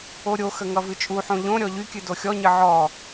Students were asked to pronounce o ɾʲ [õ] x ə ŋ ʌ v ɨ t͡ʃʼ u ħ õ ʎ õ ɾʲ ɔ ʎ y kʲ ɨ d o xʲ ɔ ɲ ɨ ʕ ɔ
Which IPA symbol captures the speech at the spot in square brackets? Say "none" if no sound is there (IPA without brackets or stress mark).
o